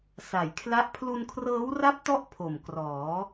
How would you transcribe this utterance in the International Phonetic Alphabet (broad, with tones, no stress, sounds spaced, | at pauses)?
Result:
s a˨˩ j kʰ l a˥˩ ʔ pʰ l u˧ n kʰ r ɤː˦˥ w r a˦˥ p̚ t ɔ˦˥ ʔ pʰ o˨˩ m k r ɔː˩˦